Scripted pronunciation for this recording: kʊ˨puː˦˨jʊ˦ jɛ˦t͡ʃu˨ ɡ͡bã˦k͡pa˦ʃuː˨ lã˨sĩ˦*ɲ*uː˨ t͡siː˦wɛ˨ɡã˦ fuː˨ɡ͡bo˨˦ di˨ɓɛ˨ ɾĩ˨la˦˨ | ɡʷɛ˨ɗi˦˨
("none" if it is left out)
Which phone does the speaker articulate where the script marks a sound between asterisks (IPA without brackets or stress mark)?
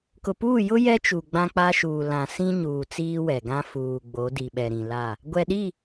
ɲ